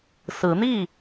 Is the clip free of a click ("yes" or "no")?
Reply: yes